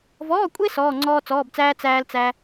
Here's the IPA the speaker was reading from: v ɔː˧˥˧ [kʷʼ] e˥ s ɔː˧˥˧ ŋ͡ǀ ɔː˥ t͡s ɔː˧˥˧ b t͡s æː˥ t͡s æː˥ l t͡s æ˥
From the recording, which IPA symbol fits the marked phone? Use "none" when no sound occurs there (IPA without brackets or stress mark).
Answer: kʷʼ